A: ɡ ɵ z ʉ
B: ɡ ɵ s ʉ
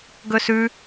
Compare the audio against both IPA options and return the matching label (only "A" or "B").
B